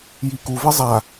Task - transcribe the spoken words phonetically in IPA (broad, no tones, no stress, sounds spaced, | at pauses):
j i k u v e zˤ a